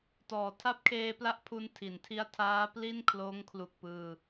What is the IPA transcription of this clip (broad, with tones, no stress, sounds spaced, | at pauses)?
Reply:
t ɔː˩˦ tʰ a˦˥ p̚ kʰ eː˧ p l a˦˥ ʔ pʰ u˧ n tʰ i˩˦ n tʰ i˧ a̯ tʰ aː˦˥ p l i˥˩ n kʰ l oː˦˥ ŋ kʰ l u˨˩ k̚ p ɯː˧